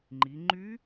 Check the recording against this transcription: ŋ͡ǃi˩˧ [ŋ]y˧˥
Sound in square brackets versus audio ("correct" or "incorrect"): incorrect